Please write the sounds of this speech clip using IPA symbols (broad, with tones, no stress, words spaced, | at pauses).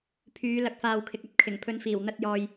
pʰyː˨˧lɐ˨k̚faː˨w kʰɪ˨k̚ɐ˥p̚kʰɪ˨˩ŋ pʰɵ˨˧nfiː˨˩wn̪ɐ˧t̚jɔː˨j